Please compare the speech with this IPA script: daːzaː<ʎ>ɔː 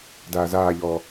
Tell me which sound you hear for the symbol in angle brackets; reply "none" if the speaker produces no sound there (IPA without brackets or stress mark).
ʎ